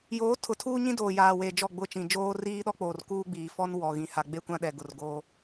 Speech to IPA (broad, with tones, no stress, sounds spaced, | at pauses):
j oː˨˦ tʰ ʊ˨ tʰ uː˦ ɲ ĩ˦ d oː˨ j aː˨ w e˨ d͡ʒ ɔ˦˨ ɡ͡b ʊ˦˨ t͡ʃ ĩ˨ d͡ʒ oː˦ r iː˦ ɗ ɔ˦ k͡p oː˨ r k uː˦ ɡ͡b iː˨ f ɔ˦ n w ɔ˨ ɣ ĩ˨ h a˨ ɡ͡b e˦ kʷ ã˦ ɗ ɛ˨ ɡ ʊ˨ r ɡ oː˦